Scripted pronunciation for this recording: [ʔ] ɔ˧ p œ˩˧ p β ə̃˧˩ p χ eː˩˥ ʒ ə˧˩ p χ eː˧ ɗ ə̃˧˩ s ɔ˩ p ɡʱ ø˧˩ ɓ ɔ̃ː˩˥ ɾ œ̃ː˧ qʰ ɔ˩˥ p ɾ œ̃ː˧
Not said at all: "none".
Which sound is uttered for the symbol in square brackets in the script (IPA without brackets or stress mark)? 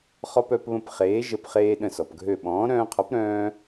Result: χ